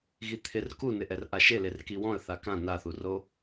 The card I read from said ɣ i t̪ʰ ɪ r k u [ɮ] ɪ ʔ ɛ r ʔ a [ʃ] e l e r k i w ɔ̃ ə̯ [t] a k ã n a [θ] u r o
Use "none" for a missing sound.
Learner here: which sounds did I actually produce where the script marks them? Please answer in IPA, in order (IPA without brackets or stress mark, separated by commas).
n, ʃ, θ, θ